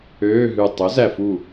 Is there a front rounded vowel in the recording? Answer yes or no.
yes